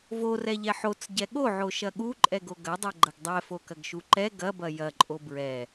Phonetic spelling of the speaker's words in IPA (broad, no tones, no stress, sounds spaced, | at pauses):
v o r ɛ ʎ ɛ ħ o t͡s ɟ ɛ ɠ o ʕ o ʃ ɐ ɠ u ǃʼ ɛ ɡ o ɡ ɐ dˤ ɛ ɡ͡ǃ ɐ ɡ dˤ ɛ f o k ɐ ɡ ʃ u ǃ ɛ ɡ ɐ b ɐ j ɐ ǃʼ o b ɹ ɛ